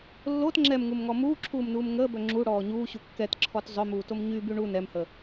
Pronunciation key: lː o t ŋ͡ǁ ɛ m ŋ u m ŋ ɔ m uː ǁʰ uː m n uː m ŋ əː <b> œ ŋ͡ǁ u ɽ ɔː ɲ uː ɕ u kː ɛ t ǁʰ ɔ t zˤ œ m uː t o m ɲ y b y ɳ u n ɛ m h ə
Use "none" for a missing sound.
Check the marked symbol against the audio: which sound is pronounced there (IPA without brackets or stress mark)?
b